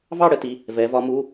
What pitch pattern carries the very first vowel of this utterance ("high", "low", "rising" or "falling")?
falling